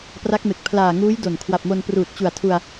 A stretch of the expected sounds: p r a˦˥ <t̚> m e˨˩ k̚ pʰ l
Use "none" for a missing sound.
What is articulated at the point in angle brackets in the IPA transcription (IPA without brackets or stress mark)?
k̚